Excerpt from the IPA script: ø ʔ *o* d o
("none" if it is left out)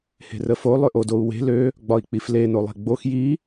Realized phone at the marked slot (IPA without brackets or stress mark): o